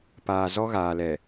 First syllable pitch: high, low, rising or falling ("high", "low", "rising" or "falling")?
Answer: low